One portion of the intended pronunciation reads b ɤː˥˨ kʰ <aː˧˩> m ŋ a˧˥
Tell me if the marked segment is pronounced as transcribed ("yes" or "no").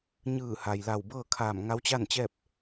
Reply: yes